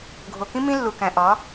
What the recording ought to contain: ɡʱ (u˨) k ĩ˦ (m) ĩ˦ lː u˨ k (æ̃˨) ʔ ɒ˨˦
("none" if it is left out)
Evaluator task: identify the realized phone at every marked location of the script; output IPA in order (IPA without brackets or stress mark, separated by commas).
o˨, m, æ̃˨